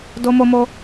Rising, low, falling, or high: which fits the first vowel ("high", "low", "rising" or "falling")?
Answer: high